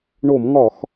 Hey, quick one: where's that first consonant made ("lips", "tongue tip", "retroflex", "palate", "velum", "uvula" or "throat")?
retroflex